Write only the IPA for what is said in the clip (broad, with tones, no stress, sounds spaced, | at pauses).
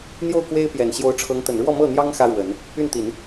n̪ j o˥˩ ʊ̯ k w e˥ ɪ̯ p j ɛ˨˩ n ɕ j o˧˥ ʊ̯ ʈ͡ʂʰ ɤ˧˥ ŋ t̪ ə˨˩ n ɻ w ɔ˥˧ m ɤ˥˩ n̪ j ɑ˥ ŋ x ä˥ ɻ w ə˨˩˦ n | y˥˩ n t̪ i˨˩˦ n